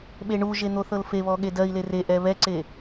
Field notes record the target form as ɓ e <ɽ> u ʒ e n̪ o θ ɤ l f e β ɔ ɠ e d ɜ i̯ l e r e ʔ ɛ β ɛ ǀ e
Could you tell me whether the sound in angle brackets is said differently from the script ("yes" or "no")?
yes